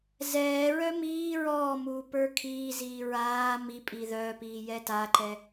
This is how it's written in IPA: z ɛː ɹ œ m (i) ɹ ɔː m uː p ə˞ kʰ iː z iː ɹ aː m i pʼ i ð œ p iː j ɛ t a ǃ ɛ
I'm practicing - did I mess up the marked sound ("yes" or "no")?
yes